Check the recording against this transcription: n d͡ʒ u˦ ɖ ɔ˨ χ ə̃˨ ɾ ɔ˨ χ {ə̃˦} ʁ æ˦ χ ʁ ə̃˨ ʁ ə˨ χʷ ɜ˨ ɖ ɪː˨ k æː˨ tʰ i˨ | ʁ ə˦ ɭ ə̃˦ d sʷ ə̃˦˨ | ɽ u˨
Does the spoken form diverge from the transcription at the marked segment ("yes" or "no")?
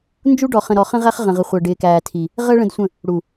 no